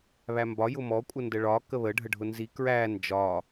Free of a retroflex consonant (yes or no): no